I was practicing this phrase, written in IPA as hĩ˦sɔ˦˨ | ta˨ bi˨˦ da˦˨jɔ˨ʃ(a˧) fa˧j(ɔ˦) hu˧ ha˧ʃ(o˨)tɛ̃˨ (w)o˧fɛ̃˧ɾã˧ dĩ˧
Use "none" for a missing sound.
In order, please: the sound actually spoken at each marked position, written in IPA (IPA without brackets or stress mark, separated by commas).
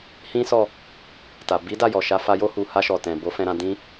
a˧, o˦, ɔ˨, b